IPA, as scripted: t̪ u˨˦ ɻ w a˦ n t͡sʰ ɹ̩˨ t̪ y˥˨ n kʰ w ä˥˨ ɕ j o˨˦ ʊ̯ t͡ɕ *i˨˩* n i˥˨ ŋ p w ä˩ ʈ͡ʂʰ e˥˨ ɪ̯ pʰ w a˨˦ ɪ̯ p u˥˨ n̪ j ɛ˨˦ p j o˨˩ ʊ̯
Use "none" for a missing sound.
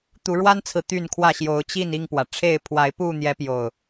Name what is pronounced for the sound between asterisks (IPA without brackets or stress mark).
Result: i˥˨